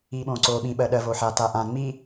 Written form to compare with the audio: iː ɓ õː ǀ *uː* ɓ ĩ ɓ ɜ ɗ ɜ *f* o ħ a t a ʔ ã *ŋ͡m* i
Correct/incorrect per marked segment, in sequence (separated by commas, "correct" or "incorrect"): incorrect, incorrect, correct